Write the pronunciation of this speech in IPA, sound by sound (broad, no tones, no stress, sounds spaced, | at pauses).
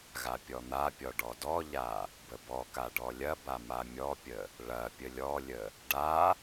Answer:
ɣ a pʲ ɔ n̪ a pʲ ɔ ɖ ɔ d ɔ ʎ a | b ə b ɔ k a ɖ ɔ lʲ ɐ b a m a mʲ ɔ pʲ ə | ɭ ɐ pʲ ə lʲ ɔ lʲ ə | ɖ a